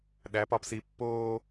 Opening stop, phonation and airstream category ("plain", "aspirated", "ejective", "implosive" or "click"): implosive